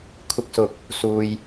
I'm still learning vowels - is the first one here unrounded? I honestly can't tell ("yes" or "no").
yes